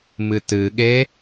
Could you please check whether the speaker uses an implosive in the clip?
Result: yes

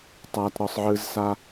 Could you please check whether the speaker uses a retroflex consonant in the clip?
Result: no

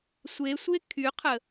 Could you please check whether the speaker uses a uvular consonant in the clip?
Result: yes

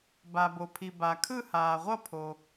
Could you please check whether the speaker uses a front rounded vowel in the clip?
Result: no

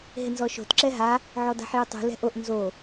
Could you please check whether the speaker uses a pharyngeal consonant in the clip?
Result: yes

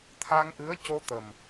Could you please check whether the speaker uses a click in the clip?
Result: no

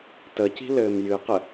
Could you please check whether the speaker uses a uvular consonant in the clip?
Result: yes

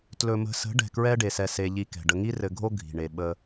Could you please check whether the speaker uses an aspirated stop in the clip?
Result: no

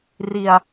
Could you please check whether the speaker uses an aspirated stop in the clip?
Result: no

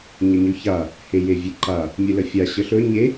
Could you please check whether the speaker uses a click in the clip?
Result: yes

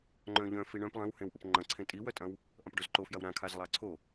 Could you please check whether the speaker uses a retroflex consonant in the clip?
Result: yes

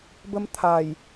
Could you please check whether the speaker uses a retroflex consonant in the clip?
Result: no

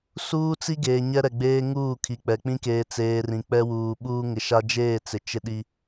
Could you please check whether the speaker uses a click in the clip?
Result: no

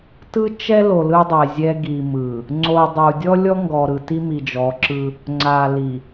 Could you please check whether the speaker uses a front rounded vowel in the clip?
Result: no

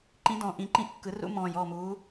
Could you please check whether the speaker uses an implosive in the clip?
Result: no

